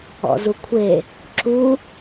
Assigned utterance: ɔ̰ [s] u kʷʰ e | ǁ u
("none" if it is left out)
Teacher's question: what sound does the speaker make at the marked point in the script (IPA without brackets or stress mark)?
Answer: z